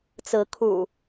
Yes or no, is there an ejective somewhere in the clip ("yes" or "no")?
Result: no